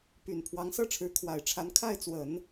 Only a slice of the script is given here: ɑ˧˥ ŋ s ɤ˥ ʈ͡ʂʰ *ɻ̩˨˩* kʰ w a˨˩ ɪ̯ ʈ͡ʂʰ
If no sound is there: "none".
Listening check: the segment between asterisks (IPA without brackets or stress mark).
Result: ɻ̩˧˥